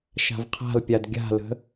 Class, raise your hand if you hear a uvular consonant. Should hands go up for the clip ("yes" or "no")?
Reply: yes